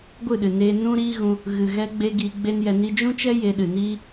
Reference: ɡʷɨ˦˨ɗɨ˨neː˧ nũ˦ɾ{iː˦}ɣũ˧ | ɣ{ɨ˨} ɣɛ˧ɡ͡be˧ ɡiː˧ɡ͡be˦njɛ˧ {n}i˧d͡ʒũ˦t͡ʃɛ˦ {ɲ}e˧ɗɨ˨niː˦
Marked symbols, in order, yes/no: yes, yes, yes, no

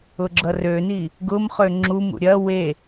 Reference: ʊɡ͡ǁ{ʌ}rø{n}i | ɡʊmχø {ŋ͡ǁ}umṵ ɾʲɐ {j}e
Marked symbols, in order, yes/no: yes, yes, yes, no

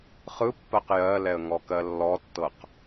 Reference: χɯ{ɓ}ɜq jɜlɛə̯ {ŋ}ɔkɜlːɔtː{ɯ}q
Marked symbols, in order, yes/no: no, yes, no

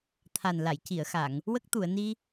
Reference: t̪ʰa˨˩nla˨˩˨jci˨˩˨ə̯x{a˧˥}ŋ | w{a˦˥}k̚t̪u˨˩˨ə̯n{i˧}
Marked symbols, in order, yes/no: no, no, yes

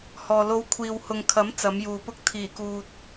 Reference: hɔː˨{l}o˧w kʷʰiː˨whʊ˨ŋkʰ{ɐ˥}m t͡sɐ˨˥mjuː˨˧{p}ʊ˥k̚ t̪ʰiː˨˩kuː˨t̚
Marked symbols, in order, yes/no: yes, no, yes

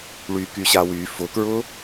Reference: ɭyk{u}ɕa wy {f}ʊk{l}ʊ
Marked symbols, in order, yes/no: no, yes, no

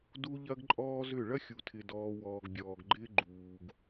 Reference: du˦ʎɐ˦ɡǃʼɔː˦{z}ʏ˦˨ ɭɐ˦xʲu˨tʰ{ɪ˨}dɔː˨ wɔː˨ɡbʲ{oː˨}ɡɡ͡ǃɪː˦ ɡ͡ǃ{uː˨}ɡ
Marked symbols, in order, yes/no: yes, yes, no, yes

